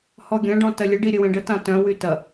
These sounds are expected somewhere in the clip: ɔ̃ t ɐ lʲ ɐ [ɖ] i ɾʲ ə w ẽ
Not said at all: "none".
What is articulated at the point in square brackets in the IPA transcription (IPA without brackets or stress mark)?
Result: ɖ